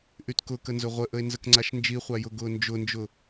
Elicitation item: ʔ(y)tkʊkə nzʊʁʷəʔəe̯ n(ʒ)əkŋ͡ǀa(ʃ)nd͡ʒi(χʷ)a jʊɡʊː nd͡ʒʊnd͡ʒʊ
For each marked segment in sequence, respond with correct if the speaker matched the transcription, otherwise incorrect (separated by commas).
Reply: correct, incorrect, correct, correct